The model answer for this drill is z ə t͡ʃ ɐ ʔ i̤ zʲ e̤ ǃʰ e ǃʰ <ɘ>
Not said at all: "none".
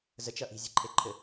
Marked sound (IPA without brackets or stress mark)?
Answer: ɘ